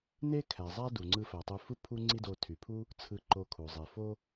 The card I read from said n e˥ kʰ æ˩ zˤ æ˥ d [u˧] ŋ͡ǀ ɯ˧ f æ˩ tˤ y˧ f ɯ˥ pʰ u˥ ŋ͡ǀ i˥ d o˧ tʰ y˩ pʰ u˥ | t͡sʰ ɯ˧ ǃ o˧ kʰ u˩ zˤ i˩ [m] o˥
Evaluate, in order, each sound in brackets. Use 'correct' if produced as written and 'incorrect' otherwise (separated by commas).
incorrect, incorrect